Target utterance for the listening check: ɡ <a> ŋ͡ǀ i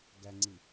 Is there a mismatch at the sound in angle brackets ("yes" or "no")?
yes